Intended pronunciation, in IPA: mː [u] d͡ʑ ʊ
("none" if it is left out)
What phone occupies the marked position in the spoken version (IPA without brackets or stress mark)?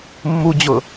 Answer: u